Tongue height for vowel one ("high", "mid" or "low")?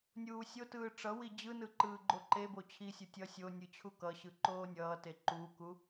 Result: high